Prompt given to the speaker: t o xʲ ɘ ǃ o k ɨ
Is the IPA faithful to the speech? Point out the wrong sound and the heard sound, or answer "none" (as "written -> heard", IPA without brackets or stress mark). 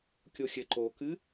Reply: t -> kʲ